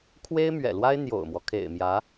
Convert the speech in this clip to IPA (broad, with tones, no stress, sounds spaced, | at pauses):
kʰ w e˥ ɪ̯ m ɥ ɛ̰˨˩ l w a˥ ɪ̯ n̪ j o̰˨˩ ʊ̯ m w ɔ˦ kʰ ḛ˨˩ ɪ̯ m j ä˧˥